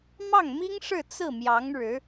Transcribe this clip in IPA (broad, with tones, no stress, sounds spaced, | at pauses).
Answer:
m ɑ˥˩ ŋ m i˥ ŋ ʂ ɻ̩˥˧ t͡s ɹ̩˥˩ m j ɑ˧˥ ŋ ɻ ɻ̩˧˥